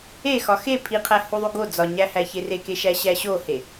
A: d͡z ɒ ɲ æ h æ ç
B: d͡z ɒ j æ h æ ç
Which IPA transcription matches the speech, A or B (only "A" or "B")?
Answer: A